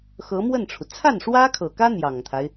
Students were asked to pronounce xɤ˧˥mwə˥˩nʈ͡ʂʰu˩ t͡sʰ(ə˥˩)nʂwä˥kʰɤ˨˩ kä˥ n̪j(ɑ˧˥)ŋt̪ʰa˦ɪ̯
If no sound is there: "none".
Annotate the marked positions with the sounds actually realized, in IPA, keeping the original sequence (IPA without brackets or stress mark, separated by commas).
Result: a˥˩, ɑ˨˩